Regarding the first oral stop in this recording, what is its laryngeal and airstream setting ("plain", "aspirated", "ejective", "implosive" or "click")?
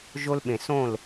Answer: implosive